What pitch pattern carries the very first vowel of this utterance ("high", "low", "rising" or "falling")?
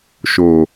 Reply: low